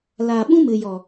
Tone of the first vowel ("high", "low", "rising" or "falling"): low